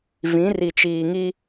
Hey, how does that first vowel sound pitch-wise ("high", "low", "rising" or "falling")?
rising